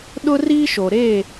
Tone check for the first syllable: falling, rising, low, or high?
high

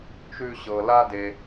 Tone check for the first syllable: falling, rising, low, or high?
high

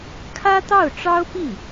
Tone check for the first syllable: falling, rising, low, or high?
high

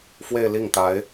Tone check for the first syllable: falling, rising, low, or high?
falling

